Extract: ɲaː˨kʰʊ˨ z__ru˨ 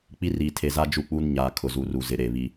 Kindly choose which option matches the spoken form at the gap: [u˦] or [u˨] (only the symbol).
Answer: u˨